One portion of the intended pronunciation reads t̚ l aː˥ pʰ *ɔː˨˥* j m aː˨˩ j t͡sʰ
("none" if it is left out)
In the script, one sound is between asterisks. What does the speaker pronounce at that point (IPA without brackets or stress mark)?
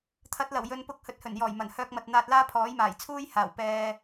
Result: ɔː˨˥